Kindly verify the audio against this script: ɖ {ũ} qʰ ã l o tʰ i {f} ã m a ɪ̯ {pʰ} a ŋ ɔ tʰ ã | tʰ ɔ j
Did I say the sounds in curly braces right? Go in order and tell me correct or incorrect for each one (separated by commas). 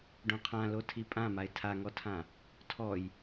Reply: incorrect, incorrect, incorrect